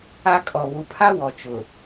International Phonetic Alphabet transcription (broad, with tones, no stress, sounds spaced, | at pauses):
a˦ kʼ ɔ˨ β u˨ pʰ a˦ w ɔ˨ t͡ʃ ʊ˨